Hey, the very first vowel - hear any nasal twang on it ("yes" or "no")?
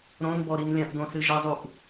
yes